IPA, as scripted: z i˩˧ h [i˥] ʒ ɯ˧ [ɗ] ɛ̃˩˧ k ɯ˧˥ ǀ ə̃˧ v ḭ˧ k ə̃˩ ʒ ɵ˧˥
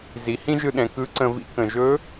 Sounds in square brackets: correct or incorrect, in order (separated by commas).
incorrect, correct